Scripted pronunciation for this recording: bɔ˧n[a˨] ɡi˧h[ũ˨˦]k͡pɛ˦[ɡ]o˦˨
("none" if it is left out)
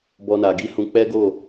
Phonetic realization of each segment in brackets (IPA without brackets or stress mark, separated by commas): a˨, ũ˧, ɡ